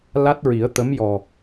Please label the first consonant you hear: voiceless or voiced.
voiced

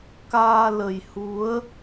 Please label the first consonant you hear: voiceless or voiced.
voiceless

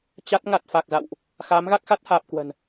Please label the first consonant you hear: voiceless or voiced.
voiceless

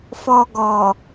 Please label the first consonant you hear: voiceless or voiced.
voiceless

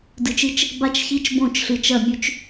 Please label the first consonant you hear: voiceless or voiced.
voiced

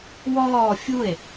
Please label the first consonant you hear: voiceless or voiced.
voiced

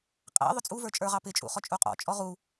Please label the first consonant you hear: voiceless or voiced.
voiceless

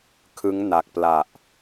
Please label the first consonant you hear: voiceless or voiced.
voiceless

